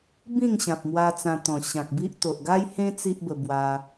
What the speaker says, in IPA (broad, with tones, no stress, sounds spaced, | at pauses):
b ĩ˥˧ ŋ ɕ ã˨ p̚ m w a˧ t͡s ã˧ t̪ ɔ̃˨˩ ɕ ã˨ k̚ b i˦ ʔ t̪ o˨ ʔ ɡ a˦ j h ẽ˦ t͡s i˦ ʔ b ə˧ b w a˧